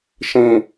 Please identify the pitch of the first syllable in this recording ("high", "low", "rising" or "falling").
low